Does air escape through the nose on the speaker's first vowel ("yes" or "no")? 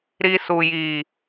no